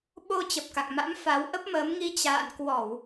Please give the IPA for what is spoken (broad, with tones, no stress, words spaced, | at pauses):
ɓo˧ t͡ɕə˨˩p̚ka̰˧˨ŋma̰˧˥m fa˨˦wʔə˦˥p̚məː˨˦mŋi˧ t͡ɕa̰ː˧˨nkwɔ˧˩˨w